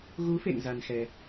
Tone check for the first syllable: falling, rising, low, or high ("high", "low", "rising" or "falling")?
rising